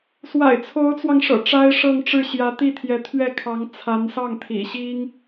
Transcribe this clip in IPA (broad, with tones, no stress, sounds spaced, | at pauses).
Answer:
s w a̰˨˩ ɪ̯ t͡sʰ o˧˥ ʊ̯ t͡s w ɑ˧ ŋ ʂ ɤ̰˨˩ ʈ͡ʂ a˥ ɪ̯ ʂ ɤ˥˧ ŋ ʈ͡ʂ ɻ̩˥˩ ɕ j ä˧˥ t̪ i˥˩ t̪ʰ j ɛ˧˥ t̪ʰ ɥ ɛ˥˩ kʰ ɑ˧˥ ŋ t͡sʰ a˧˥ n s ɑ˥˩ ŋ t̪ʰ ḭ˨˩ ɕ i˥ ŋ